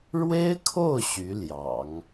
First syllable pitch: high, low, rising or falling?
high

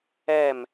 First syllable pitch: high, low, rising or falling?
falling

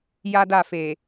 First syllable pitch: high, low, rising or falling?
high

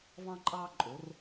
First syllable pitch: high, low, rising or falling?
high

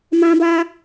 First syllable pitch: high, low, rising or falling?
high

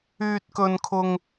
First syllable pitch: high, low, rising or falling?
high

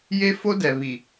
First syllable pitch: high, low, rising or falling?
high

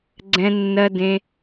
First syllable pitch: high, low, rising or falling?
low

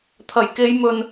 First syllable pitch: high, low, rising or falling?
low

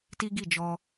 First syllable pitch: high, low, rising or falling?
high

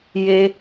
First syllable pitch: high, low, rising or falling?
high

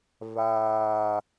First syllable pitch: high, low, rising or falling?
high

